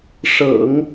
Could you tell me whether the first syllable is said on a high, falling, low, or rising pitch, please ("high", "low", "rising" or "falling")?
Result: low